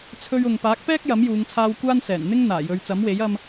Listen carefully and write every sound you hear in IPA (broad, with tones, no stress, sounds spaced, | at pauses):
t͡sʰ ɵ˧ ɥ ʊ˨ ŋ p aː˨˥ k̚ p ɛː˥ k̚ j ɐ˨˥ m j uː˨˧ ŋ t͡sʰ aː˧ w kʷ aː˥ n s ɛː˨˩ n n̪ ɪ˥ ŋ n̪ aː˨˩ j ɵ˨˧ ɥ t͡s ɐ˨˥ m w e˨˥ j ɐ˥ m